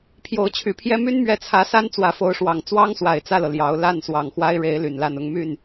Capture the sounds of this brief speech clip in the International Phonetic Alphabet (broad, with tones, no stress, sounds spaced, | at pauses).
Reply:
pʰ j o˧˥ ʊ̯ t͡ɕʰ y˨˩ pʰ j ɛ˥ m y˥ n m ɥ ɛ˧˥ t͡sʰ ä˧˥ s a˥ n t͡s w ä˧˥ f o˧˥ ʊ̯ ʂ w ɑ˨˩ ŋ t͡s w ɑ˥ ŋ s w a˨˩ ɪ̯ t͡s ä˥˩ l ɤ˩ l j ɑ˧˥ ʊ̯ l a˥˩ n s w ɑ˨˩ ŋ x w a˥ ɪ̯ ɻ e˧˥ ɪ̯ l y˨˩ n l a˥˩ n ʊ˥ ŋ m y˥˩ n